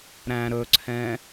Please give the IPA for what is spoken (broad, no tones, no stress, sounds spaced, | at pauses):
ɾ æ̃ ɾ ɵ ǀʰ ɛ̃